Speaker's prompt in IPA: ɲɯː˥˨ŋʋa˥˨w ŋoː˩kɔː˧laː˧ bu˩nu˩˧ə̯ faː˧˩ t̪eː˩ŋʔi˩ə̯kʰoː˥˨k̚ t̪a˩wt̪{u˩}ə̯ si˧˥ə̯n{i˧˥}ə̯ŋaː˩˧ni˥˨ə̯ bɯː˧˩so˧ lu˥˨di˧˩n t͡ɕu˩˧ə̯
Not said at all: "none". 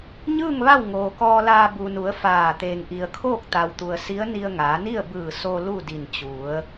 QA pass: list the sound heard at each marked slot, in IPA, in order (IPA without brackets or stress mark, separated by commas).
u˩, i˧